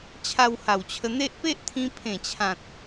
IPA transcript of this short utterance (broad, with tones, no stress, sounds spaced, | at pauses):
t͡ɕʰ a˧ w h a˨˩ w t͡ɕʰ ə˧ n̪ e˦ ʔ p e˦ ʔ t̪ʰ ĩ˧ pʰ ẽ˨˩ t͡ɕʰ ã˨ t̚